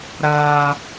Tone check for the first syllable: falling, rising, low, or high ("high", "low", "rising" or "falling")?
high